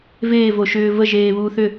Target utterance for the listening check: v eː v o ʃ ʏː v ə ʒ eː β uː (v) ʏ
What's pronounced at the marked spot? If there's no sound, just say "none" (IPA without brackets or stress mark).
θ